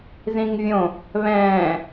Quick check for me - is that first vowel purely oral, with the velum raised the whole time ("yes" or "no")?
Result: no